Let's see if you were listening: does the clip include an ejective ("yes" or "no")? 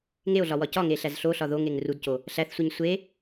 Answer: no